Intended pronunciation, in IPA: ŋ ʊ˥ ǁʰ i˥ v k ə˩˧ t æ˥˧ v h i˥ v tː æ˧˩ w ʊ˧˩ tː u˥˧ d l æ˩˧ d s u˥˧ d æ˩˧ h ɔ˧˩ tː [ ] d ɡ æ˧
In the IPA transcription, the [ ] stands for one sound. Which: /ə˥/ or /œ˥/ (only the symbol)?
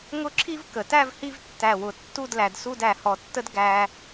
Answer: ə˥